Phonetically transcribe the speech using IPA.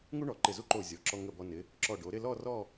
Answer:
ŋ u˥ ɳ ɔ˩˧ ǃ ɪ˧˩ z u˥ ǃ o˧˩ zʲ ɔ˩˧ ǁ ɔ˧ ŋ ə˧˩ b ɔ˧ n ɪ˩˧ | ǁ ɔ˧˩ ɖ o˩˧ ɾ ɪ˥˧ l ɔ˥˧ r ɔ˥˧

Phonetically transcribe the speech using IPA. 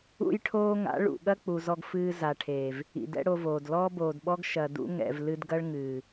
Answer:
ṵ˦ j ʈʰ oː˦ ŋ a̰˨˦ ɭ ṵ˨ ɠ ɐ˦ k͡p u˨ z ɔ˧ ɡ f ɨː˧ z a˨ ʈʰ eː˨ v | ḭ˨ d ɛ̰˦ ɽ o˧ v oː˨ d l ɔː˦ b oː˨ d ɓ ɔ˦ ɡ ʃ ɐ˨ d ṵ˦ ŋ ɛ̰˨ v l ɨ˧ d ɡ ɐ˦ ɭ ŋ ɨː˨

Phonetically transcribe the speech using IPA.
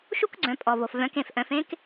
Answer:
ʃ u˥ k ɡ͡ǀ œ̃˩˧ pʼ ɔ˩ v o˩ f v œ̃˩˧ k ẽ˩ f ʔ œ̃˩˧ f ẽ˥ k

